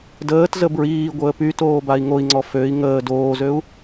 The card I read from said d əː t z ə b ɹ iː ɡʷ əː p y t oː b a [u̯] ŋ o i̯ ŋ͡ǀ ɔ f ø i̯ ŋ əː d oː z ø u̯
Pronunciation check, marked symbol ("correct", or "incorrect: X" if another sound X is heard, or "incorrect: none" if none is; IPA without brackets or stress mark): incorrect: i̯